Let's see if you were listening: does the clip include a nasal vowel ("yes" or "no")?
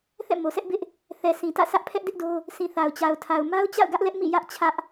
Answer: yes